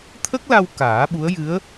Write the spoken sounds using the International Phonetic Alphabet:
t̪ʰ ə˦˥ k̚ l a˧ w k aː˨˩˦ ɓ u˧˥ ə̯ j ɨ˧˥ ə̯

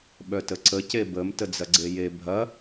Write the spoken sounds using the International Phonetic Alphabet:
ɓ œ t ə ǀ ə c e b ə m t ə d͡z ɐ ɡ͡ǀ e j e bʱ ɐ

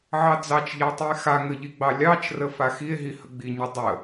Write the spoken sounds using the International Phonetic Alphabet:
ʕ ɑ d͡z ɑ t͡ʃ ʎ a tˤ i e̯ x a ŋ ə ʎ i ɡ͡b ɑ lʲ ɑ t͡ʃ r ə f a x i e̯ ɦ i h ə ɡ͡b i ɲ ə dˤ ə

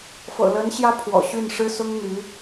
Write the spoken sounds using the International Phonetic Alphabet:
f ɤ̰˨˩ l ə˧˥ n ɕ j ä˥ pʰ w ɔ̰˨˩ ɕ y˥˩ n ʂ ɻ̩˥ s ʊ˥ ŋ n̪ y˧˥

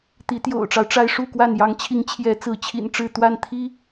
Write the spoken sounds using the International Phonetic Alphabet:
t̪ i˨˦ t̪ j o̰˨˩ ʊ̯ ʈ͡ʂ ɑ˦ ʊ̯ ʈ͡ʂ a˦ ɪ̯ ʂ u˥˨ k w a˥˨ n j ɑ˨˦ ŋ t͡ɕʰ i˨˦ ŋ t͡ɕʰ j ɛ˨˦ t͡s ɹ̩˨˦ t͡ɕʰ ḭ˨˩ n ʈ͡ʂ ɻ̩˥˨ t̪ w a˥˨ n t̪ʰ i˦

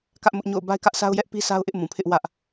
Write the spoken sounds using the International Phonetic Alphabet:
k ä˦ ʔ m ʊ˦ ʔ ɲ o̰˦˨ ʊ̯ b a˦ ɪ̯ k ä˦ ʔ s a˦ ʊ̯ j ɛ˦ ʔ p i˦ s a˦ ʊ̯ ʔ ɪ˦ ʔ m ũ˨ pʰ ɪ˦ ʔ w ä˦ ʔ

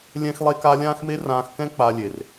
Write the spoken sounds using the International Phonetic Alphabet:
lʲ ɛ̃˦ x lˠ e˦ k a˦ lʲ ãː˦ x m e˦ r ãː˧ x k ɛ̃˦ k͡p a˧ lʲ e˨ r

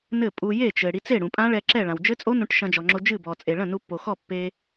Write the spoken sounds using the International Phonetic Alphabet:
n ɘ˥˩ pʼ u˧ j e˥˩ t͡ʃ ɘ˩ ɽ i˧ t͡s e˥˩ ɽ ũ˩ pʼ ã˦˥ ɭ ɛ˧ ǁ ɛ˥˩ ɭ ã˩ w d͡ʒ ɘ˦˥ t͡sʼ o˦˥ n ũ˧ ʈ ʃ ɐ̃˧ d͡ʒ ɔ˩ ŋ͡ǁ o˧ d͡ʒ ɨ˥˩ b ɔ˩ t͡sʼ e˩ ɭ ɐ̃˥˩ n u˧ pː o˩ x ɔ˥˩ pː e˧

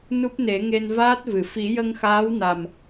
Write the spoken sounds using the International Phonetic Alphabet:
n u˦˥ p̚ n e˨˩˦ ŋ e˧ n v aː˦˥ t̚ v ɨ˨˩˨ f i˨˩˦ j ə˧ ŋ x aː˧˥ w n a˨˩ m

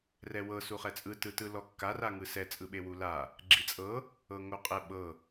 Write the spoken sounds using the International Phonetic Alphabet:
r ɛ w ɤ s u χ ɛ t͡sʼ ɯ t ɯ t ɯ l ɔ kː a r a ŋ ɯ s ɛ t͡sʼ ɯ ɓ e w u l a | ɡ͡ǁ i t͡sʼ ɤ | ɤ ŋ o qʼ ɛ ɓ ɤ

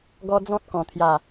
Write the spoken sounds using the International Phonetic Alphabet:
ɡ ɔ˦ d͡z ɔ̃˦ t̚ k ɔ̃˨˩ t̪ʰ j a˨˩

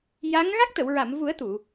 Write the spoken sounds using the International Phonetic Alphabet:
j a˧˥ ŋ ɣ a˦˥ k̚ t̪ ə˨˩˨ w ɹ a˨˩˨ m v u˨˩˦ ə̯ t̪ u˨˩˨

